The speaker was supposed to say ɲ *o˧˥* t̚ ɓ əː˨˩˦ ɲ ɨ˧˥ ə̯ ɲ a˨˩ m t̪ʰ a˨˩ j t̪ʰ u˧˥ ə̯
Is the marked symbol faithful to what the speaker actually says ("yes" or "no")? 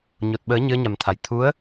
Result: no